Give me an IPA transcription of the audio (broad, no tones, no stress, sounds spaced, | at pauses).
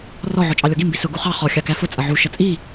r ɔ ʕ ɔ t͡ʃʼ ɑ lʲ ɔ ɡ i m b i s ʊ ɡ u χ ɑ χ ɔ xʲ ɑ k æ f ʊ t͡sʼ ʌ ʕ u ʃ ʌ t͡sʼ i